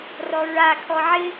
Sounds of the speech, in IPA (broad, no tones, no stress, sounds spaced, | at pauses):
r ɔ ɹ a kʰ ɔ ʕ ɪ